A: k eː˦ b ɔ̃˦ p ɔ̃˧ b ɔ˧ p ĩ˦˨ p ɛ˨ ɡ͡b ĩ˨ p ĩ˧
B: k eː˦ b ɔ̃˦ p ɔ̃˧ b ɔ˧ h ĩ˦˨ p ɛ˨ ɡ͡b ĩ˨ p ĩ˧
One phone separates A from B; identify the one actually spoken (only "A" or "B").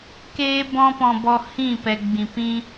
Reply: B